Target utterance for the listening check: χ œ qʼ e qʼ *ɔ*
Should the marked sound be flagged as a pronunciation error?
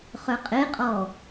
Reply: no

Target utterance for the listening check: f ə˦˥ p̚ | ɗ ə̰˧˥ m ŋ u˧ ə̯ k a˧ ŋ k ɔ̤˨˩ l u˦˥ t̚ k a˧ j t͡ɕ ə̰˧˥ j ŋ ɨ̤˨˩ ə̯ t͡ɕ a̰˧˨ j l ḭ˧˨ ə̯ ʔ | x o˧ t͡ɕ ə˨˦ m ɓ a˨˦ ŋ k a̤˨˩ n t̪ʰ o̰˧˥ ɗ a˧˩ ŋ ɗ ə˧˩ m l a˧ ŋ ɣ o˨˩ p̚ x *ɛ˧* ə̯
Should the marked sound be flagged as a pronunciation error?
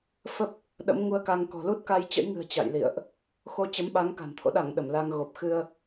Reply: yes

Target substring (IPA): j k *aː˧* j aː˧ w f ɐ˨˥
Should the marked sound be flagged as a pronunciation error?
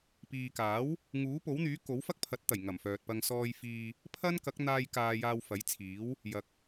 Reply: no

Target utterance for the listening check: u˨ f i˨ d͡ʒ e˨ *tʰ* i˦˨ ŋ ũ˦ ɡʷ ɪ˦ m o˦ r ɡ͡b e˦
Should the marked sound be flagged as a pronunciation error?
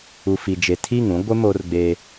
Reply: no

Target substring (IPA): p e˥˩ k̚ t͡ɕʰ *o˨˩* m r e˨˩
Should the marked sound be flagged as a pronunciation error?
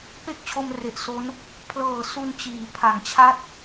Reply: yes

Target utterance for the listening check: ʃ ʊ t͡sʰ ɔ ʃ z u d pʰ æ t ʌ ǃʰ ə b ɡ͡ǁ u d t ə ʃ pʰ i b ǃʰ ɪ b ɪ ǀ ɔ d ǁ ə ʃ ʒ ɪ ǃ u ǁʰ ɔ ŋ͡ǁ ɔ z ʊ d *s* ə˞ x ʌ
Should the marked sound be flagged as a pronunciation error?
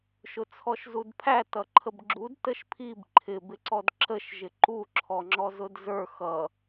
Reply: yes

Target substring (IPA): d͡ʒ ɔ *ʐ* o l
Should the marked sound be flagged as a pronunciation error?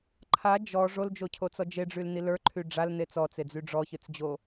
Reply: no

